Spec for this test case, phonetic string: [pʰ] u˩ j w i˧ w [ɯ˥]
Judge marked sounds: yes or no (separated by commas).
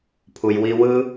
yes, yes